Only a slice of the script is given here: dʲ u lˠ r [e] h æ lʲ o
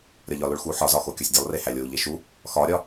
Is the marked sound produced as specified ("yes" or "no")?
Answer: yes